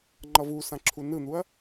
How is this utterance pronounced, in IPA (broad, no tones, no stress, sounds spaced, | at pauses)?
ŋ͡ǃ ʌ v u s ã ǁʰ u n ɯ n̪ u ɐ̯